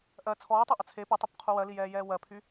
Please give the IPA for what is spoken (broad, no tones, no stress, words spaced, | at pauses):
ʔɜ t͡sʰɔːtˤeʔə t͡sʰe pɛtˤupqʰu wɜlijɛːjɛː wɜpʰy